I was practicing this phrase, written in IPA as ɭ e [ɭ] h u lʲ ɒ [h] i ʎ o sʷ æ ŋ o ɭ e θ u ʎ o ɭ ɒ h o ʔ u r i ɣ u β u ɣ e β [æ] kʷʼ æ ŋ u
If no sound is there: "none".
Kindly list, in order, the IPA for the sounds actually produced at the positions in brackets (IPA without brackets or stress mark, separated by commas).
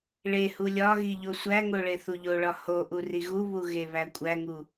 none, ɣ, æ